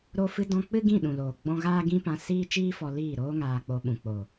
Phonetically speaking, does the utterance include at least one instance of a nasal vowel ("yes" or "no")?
yes